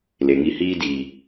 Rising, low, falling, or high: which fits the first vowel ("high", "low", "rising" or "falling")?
low